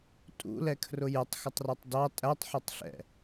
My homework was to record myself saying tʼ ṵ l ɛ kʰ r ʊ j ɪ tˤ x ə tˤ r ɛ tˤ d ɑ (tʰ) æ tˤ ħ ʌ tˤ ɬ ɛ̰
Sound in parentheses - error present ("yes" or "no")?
yes